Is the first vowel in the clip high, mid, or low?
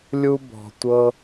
high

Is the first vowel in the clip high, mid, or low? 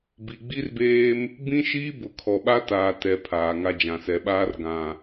high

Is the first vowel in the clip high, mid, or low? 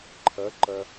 low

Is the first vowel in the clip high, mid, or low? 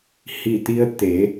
high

